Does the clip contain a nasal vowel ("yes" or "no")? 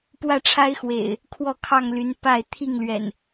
no